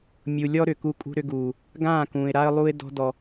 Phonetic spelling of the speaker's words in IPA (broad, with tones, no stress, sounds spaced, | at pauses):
mʲ u˨ lʲ ɔ˦ ɾ ʏ˨ k u˧ kʼ ṳ˧ ɾ ʏ˧ ɡ uː˨ | ɡ ãː˦˨ k ũː˨ ɪ̯ ɾ a˦ ə̯ lˠ u˦ ɪ̯ d ɔ̤˦ d ɔ˧